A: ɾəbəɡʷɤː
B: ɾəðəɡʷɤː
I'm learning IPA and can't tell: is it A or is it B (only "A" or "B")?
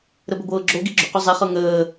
A